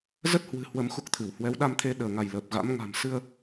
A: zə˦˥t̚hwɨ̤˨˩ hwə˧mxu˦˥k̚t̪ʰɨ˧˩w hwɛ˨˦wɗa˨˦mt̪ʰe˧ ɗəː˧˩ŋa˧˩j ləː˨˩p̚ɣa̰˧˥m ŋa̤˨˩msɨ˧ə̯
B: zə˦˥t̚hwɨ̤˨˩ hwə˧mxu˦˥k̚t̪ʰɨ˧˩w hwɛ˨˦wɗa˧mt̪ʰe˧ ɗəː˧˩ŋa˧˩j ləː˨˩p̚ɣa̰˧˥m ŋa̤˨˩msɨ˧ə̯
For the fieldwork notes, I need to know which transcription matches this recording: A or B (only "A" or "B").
B